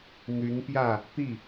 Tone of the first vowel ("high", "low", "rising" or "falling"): rising